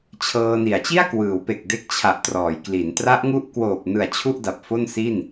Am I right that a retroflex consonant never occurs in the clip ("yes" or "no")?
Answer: yes